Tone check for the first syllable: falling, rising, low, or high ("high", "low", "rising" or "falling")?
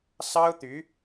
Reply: high